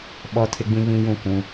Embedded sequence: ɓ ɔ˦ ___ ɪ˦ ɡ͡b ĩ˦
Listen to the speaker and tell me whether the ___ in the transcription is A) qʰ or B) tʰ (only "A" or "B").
B